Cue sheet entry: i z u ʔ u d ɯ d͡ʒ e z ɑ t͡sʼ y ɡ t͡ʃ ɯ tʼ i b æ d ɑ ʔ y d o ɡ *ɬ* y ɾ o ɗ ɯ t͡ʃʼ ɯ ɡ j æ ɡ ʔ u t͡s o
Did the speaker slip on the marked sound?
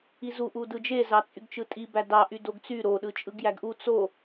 yes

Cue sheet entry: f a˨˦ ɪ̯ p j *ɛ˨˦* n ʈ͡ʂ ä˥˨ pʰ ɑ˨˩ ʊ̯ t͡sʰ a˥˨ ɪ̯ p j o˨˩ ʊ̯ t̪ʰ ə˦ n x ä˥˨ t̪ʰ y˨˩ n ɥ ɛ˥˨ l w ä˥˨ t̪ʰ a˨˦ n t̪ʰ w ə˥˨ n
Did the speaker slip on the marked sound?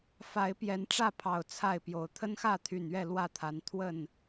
no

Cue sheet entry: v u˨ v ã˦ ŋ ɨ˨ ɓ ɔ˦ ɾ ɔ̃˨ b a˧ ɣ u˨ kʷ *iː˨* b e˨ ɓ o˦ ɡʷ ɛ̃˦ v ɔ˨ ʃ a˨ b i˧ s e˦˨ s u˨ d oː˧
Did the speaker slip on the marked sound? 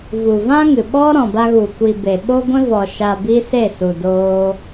yes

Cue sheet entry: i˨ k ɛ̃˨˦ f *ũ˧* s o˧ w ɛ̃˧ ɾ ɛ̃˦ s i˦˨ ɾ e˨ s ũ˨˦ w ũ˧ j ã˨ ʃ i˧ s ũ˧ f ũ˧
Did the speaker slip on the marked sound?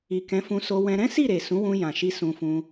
no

